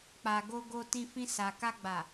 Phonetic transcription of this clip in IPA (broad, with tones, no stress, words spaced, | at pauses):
k͡pa˨ɡo˧ɡo˧ tĩ˧fĩ˧sa˨ ka˧ɡ͡ba˨